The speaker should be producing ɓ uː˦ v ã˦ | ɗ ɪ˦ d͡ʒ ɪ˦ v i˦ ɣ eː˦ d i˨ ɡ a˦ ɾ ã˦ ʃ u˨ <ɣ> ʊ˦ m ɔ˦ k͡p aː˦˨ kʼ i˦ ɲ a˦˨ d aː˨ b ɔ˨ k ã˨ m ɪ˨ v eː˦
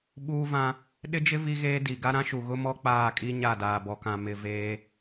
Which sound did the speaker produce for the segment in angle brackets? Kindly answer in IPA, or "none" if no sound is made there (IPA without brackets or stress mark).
ɣ